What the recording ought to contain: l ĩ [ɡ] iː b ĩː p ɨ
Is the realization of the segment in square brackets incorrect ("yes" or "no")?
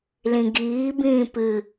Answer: no